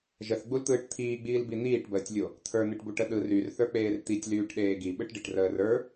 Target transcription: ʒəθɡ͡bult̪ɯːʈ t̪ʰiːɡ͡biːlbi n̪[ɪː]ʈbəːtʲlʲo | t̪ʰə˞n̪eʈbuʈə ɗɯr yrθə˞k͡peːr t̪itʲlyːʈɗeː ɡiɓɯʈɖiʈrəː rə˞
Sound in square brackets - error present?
yes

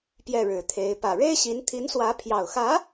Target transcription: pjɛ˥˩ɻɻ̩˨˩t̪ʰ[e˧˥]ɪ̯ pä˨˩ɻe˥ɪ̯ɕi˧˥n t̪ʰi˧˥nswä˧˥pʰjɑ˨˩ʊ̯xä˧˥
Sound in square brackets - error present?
no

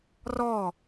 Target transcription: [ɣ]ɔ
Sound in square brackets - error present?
yes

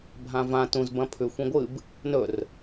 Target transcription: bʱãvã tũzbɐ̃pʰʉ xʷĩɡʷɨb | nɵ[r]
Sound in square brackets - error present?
no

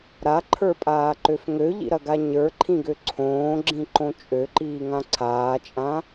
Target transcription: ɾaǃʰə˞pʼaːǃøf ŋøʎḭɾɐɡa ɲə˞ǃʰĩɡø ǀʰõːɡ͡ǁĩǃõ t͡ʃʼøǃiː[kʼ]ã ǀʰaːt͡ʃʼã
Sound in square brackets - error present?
yes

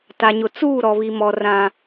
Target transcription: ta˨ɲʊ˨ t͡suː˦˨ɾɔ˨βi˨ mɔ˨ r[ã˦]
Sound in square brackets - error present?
no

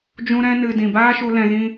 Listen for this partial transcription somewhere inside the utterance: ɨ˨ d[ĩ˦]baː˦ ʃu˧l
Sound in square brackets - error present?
yes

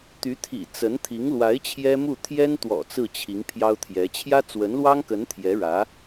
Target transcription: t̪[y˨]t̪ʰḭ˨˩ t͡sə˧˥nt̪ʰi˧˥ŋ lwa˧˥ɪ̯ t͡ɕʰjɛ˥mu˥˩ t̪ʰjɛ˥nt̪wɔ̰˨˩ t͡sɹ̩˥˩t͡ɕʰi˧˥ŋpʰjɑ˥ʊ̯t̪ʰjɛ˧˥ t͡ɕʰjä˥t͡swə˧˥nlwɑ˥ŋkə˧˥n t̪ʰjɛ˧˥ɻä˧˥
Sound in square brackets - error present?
yes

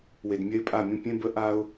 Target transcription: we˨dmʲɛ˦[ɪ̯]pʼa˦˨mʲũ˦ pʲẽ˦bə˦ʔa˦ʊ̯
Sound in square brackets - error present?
no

